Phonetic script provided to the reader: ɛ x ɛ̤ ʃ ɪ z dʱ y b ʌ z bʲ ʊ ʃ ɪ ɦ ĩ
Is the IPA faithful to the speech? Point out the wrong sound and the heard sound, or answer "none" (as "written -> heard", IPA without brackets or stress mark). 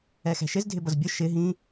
y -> ɪ